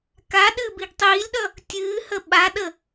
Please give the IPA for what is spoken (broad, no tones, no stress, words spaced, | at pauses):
ka ɗɨːbiɡtˤiːlʲɗʌ | tʲɨːhə ɓaɗə